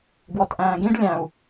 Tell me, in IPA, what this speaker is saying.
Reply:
ɡ w ɔ t ʔ æ̃ː ɡ ĩ ɖ lʲ æ̃ u̯

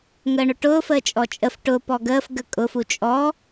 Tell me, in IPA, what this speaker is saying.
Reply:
ŋ əː ɳ ʊ ʈ ʊː f əː t͡ʃʼ ɔ t͡ʃʼ ə f ʈ ʊ p ɔ ɡ əː f ɡ ə kʼ ʊ f u t͡ʃʼ ɔ

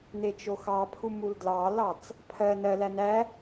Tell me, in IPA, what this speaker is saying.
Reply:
n e t͡ʃ o x ɑ pʰ u m u l d l ɑ l ɑ t͡s | pʰ ɜ n ɜ l æ n æ

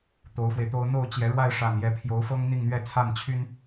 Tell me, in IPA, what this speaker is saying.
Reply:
t̪ o˧˥ ʊ̯ f w e˧ ɪ̯ t̪ o˥ ʊ̯ n̪ o˥˩ ʊ̯ t͡ɕ j ɛ˧˥ ɻ w a˥˧ ɪ̯ ʂ a˥˩ n j ɛ˧˥ pʰ j o˧˥ ʊ̯ f ɤ˥ ŋ n̪ i˥˧ ŋ n̪ ɥ ɛ˥˧ t͡sʰ a˥˩ n t͡ɕʰ y˥ n

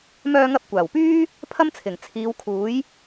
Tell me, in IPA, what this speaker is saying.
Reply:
m œː˧ ŋ ɐ˧ p̚ kʷ aː˨˩ w p yː˥ | pʰ ɐ˥ m t͡sʰ ɪ˨˩ ŋ t͡sʰ iː˨˧ w kʰ uː˨˥ j

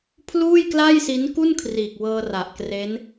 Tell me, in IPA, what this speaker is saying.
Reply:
pʰ l uː˥˩ j k l aː˥˩ j s i˦˥ n k u˥˩ n kʰ r iː˨˩ k̚ w ɤː˧ r a˨˩ ʔ k r e˦˥ n

